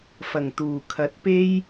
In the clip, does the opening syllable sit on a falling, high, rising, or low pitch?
low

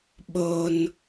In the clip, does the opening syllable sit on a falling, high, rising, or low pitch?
high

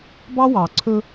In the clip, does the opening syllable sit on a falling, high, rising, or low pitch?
high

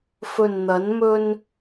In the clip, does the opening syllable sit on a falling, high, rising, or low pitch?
low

